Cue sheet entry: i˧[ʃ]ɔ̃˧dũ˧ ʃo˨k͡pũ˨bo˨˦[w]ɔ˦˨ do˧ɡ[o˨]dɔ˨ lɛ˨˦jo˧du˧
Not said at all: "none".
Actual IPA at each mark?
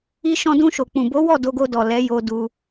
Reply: ʃ, w, o˧

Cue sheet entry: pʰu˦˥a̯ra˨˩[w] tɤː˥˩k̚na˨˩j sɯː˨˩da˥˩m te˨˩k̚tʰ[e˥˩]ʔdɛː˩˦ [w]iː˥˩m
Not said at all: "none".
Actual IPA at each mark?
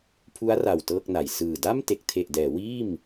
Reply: w, e˨˩, w

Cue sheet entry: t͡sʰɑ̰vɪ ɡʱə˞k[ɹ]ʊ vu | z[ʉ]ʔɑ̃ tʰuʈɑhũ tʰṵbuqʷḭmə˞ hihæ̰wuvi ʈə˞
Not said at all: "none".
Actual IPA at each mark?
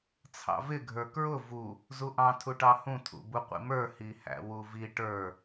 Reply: ɹ, u

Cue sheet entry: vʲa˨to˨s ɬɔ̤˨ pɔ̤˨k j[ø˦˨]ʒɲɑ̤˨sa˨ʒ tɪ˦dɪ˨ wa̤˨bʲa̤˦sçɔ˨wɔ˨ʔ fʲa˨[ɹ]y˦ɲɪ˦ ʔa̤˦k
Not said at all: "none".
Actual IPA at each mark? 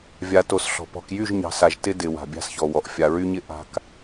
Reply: y˦˨, ɹ

